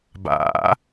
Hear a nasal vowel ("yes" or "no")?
no